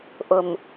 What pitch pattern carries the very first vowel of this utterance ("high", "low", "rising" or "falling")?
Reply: low